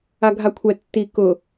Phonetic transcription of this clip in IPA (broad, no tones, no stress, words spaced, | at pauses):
aɡʱakʷʰɛ tːi kʊ